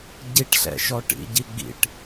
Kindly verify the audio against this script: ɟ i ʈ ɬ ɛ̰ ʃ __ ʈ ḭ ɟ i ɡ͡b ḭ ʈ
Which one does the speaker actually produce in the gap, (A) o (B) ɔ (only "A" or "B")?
B